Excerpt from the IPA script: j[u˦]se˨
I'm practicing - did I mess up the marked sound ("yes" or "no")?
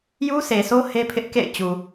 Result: no